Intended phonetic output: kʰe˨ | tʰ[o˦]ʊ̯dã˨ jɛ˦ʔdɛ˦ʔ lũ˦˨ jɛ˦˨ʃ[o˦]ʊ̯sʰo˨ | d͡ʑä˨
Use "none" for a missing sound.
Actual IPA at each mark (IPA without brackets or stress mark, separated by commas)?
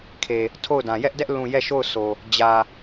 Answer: o˦˨, o˦˨